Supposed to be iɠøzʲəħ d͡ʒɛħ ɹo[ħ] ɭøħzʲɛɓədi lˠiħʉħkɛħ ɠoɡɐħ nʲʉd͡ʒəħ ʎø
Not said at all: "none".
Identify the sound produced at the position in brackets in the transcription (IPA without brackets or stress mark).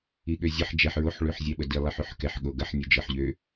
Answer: ħ